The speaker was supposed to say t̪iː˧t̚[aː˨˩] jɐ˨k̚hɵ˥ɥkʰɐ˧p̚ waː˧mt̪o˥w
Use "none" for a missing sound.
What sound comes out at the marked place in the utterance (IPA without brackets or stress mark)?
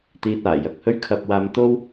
aː˨˩